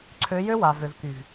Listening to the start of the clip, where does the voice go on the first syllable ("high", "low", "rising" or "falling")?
rising